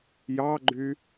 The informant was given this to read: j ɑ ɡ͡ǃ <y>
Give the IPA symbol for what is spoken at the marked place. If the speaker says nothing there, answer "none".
y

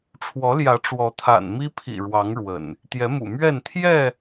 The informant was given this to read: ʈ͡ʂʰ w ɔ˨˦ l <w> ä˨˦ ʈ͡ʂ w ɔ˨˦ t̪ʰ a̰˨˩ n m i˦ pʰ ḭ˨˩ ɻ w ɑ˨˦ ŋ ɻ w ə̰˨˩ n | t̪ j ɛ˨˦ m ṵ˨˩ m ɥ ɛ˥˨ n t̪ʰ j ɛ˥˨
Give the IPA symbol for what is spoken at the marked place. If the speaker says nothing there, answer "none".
j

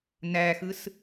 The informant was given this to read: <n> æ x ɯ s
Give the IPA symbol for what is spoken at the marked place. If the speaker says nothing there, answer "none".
n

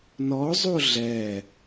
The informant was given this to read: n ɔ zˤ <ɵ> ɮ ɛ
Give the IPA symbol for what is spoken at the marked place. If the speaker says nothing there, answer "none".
o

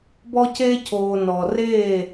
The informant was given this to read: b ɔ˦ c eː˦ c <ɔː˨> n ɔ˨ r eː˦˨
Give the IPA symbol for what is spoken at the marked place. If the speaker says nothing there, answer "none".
oː˨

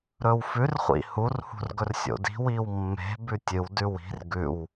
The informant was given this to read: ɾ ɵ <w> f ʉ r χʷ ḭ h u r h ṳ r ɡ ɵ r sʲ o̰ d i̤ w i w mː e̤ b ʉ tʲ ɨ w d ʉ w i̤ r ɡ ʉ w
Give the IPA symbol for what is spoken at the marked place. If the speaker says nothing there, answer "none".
w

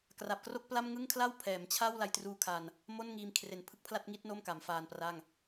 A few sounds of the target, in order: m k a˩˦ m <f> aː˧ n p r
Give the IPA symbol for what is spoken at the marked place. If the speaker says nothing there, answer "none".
f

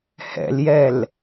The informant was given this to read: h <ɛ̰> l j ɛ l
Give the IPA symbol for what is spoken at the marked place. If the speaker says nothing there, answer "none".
ɛ̰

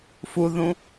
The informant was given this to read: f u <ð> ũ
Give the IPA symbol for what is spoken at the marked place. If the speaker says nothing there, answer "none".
ð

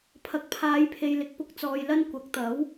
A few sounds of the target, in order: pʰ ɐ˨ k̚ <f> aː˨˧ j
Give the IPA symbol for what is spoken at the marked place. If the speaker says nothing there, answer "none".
pʰ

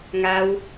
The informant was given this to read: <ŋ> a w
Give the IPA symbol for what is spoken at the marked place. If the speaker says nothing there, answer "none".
ŋ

